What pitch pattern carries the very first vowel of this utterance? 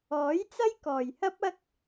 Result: rising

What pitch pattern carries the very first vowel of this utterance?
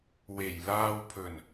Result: low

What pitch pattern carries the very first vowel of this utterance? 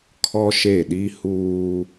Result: high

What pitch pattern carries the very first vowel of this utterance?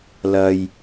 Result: low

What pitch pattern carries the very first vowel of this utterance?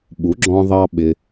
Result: rising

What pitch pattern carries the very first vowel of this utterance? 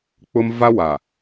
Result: high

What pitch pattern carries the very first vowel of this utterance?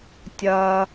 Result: low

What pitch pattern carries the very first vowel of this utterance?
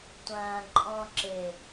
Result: low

